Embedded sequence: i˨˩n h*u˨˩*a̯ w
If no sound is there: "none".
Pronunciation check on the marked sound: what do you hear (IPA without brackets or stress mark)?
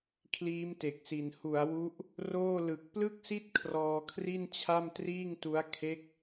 u˩˦